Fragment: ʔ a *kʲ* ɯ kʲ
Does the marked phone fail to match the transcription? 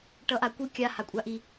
yes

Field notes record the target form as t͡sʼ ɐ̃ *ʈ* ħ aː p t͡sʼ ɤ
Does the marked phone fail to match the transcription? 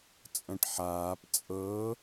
no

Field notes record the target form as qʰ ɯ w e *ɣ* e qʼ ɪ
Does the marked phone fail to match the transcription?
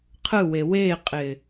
yes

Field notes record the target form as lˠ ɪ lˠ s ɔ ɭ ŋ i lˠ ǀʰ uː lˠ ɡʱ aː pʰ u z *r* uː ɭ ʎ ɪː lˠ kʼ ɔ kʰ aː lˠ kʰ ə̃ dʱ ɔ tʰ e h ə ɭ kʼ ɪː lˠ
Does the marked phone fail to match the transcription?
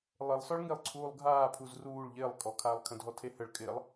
no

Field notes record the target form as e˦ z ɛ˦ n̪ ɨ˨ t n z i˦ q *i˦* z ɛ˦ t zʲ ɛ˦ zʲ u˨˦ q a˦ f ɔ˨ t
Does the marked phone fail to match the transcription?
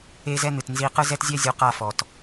yes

